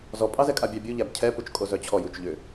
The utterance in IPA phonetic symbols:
z ɔ pʼ ɑ z ɛ kʼ a bʲ ɑ bʲ u ʎ æ b cʰ ɛ p u t͡ʃ kʼ o z œ t͡ɕʰ ɔ j u t͡ʃ ʎ ʏ

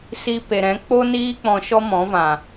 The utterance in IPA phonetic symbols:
s i˧ p e˨ ɾ ɛ̃˨˦ k͡p o˦ n iː˦ k͡p ɔ̃˧ ʃ ɔ˦ m ɔ̃˨˦ v ã˨

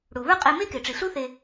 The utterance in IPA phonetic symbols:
ɽ u˩ β ə˞˥ qʼ e˧ m e˥ k e˩ ʈ͡ʂ i˩ ɬ u˥ θ e˧

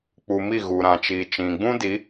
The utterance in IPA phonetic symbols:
k͡p u˧ m i˦˨ ɣ u˨ ɾ ã˨ t͡ʃ iː˨ t͡ʃ ĩ˨ ɡ͡b ũ˦ d i˨˦

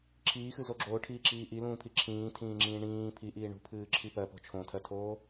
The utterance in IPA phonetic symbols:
ǁʰ iː x ɨ z o ɡ͡ǁ oː ʈʰ iː ǁ iː ʔ i l ũː pʰ i ǁʰ ĩː tʰ ĩː ŋ͡ǁ ĩː ɳ ĩː pʰ i ʔ iː ɳ ṳ pʰ ɨː ǁʰ i p ɜ p o̤ t͡ʃʰ õ tʰ ɜ tʰ oː

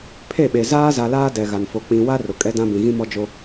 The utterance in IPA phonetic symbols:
pʰ e˦˨ ɓ e˨ z aː˦ z a˨ l aː˦ d ɛ˨ ɣ a˨ n f o˨ k͡p ĩ˨ w a˦ r ʊ˨ kʼ ɛ˦ d ã˦ b ĩ˨ ɣ ĩ˦ m ɔ˦ d͡ʒ o˦

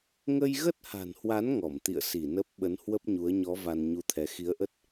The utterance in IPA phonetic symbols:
ŋ ə˧ j ɣ ə˦˥ t̚ h a̤˨˩ n h w a˨˦ n ŋ ɔ˧˩ m t̪ ḭ˧˨ ə̯ s i˧˩ n ə˦˥ p̚ ɓ ə˨˦ n h w ə˦˥ p̚ ɲ u˨˦ ə̯ ɲ ɔ˨˦ v a˧ n ɲ u˧ t̪ʰ ɛ˨˦ x i˨˦ ə̯ ʔ ə˦˥ t̚

